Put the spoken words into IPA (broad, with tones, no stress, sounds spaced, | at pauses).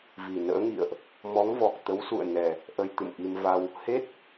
v i˨˩ n ə̰ː˧˥ ŋ ḭ˧˨ ə̯ ʔ | m ɔ˨˦ ŋ v ɔ˨˩ k̚ t̪ ə˨˦ w s ṵ˧˨ ə̯ n ɛ˨˩ | ʔ ə˧ j t̪ ɨ̰˧˨ m ʔ i˧ m v a˧ w | h e˦˥ t̚